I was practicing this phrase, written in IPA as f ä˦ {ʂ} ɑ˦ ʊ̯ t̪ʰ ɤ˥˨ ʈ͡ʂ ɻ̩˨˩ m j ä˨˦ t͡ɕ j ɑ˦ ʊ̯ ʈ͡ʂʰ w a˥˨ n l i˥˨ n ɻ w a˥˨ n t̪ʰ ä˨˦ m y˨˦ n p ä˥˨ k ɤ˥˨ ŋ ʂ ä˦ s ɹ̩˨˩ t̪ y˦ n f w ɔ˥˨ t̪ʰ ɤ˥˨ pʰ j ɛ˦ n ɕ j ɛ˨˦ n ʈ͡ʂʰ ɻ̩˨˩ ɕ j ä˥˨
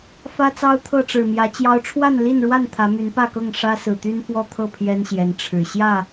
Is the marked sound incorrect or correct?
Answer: incorrect